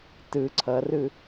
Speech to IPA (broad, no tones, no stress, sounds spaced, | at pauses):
t ɯ ǀʰ ʌ r ɯ